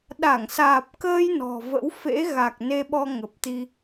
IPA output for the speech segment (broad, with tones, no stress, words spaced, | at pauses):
ɗa˧˩ŋsaː˨˩p̚kəː˧j nɔ̤˨˩və̰˧˥w fḛ˧˥ ɣa˨˩k̚ ne˧ɓɔ˧ ŋə˨˩p̚t̪i˧